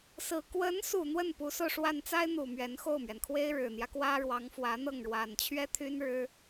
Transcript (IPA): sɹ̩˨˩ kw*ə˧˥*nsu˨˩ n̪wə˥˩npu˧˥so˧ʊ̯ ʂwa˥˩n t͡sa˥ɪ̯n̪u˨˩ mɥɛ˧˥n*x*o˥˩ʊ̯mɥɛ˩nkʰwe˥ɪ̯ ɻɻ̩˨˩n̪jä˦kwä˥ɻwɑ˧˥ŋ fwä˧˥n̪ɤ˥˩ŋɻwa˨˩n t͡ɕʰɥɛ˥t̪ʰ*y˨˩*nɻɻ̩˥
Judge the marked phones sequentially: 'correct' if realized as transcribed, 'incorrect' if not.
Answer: correct, correct, incorrect

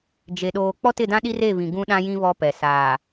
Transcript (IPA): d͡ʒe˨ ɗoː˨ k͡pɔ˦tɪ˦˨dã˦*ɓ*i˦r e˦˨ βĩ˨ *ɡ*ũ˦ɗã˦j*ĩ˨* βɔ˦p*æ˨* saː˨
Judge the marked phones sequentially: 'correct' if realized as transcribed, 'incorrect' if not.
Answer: incorrect, correct, incorrect, incorrect

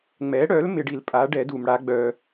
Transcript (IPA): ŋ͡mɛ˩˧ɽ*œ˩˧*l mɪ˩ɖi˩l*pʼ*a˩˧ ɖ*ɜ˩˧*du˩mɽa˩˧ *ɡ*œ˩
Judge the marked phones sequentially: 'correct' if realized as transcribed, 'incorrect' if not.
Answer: correct, correct, incorrect, incorrect

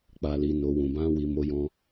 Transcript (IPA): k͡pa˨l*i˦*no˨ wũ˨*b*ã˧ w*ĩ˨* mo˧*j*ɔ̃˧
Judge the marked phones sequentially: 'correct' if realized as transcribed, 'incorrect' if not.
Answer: incorrect, correct, incorrect, correct

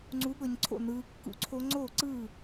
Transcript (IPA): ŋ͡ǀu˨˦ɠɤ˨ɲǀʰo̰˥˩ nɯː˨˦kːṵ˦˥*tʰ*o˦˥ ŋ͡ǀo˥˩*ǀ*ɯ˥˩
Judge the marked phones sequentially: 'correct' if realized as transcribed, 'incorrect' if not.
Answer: incorrect, correct

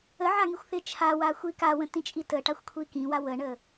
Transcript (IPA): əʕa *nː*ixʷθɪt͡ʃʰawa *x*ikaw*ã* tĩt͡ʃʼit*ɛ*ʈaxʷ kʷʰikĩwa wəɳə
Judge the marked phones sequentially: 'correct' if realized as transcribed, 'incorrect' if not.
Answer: incorrect, incorrect, incorrect, incorrect

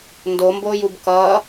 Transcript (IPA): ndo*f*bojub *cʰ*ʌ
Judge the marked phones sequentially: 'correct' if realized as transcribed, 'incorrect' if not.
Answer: incorrect, incorrect

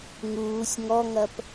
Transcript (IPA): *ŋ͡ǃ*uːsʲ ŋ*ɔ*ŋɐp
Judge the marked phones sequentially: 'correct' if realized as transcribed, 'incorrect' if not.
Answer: incorrect, correct

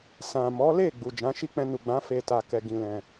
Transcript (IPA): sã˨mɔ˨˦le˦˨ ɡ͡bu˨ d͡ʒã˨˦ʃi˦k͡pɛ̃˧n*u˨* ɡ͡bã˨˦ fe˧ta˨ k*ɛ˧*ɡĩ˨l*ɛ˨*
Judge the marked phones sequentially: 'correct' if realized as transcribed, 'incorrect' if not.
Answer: correct, incorrect, incorrect

